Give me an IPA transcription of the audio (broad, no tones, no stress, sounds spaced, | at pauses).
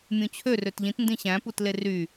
mʲ ũ t͡ɕʰ ø r ø t ʎ ĩ t n d ĩ ɕ æ̃ p u t l e r y